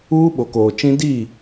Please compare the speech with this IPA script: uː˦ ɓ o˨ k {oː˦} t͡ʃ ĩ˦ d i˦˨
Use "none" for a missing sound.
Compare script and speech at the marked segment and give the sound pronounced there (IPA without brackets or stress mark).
oː˨